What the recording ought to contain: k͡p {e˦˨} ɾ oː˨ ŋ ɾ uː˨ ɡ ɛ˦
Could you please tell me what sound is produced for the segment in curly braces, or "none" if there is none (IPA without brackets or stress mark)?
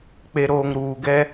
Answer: e˨